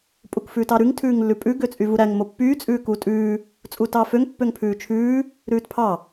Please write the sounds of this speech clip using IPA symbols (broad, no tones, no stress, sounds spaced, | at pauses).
pʼ u k f ʉː t ɑ ɾ ʉ ŋ tʰ ʉː ŋ lː ʉ pʼ ʉ ɡ ø t͡sʼ y v u ɾ æ ŋ m o pː yː t͡sʼ ʉː k uː tʼ ʉː | t͡sʼ uː t ɑː f ø ŋ pː ø ŋ pʰ ʉː t͡ʃʰ ʉː | ɾ ʉː t pʰ ɑ